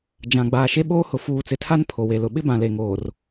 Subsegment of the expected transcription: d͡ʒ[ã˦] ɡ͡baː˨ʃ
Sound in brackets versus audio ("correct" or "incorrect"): incorrect